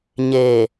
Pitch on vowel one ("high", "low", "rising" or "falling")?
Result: low